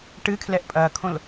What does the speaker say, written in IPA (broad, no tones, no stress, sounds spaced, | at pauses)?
ʈ ɨ kʰ l ɛ ʔ pʼ ɐː kʰ õ l